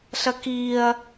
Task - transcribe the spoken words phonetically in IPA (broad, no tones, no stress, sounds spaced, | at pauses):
ɬ ɐ k i ɐ̯